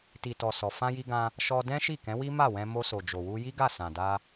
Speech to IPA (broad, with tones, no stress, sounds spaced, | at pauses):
t i˨ t ɔ˨ s ɔ˨ f ã˧ j i˧ ɡ ã˧ | ʃ ɔ˧ d ɛ̃˦ ʃ i˦˨ k ɛ̃˨˦ w i˦ m a˦˨ w ɛ̃˧ m o˧ s o˨ d͡ʒ o˨ w u˧ j i˦ ɡ a˦˨ s ã˨ d a˧